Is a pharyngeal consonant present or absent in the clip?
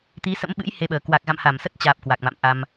absent